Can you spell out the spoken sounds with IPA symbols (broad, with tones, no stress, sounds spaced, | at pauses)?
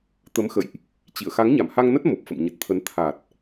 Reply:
t̪ ə˨˦ m x ə̰˧˨ j ʔ | t͡ɕ ḭ˧˨ ə̯ x a˨˦ ŋ ɲ a˧˩ m h a˧ ŋ n ə˦˥ t̚ m o˨˩ p̚ f ə̰˧˨ m ɲ ə˨˩ t̚ t̪ʰ ə˨˦ n t̪ʰ a˨˩ t̚